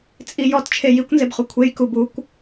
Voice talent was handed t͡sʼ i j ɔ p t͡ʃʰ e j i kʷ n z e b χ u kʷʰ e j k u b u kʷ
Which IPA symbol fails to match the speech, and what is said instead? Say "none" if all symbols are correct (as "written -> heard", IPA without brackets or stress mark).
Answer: p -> t